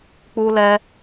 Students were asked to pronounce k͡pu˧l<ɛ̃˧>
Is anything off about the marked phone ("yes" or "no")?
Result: yes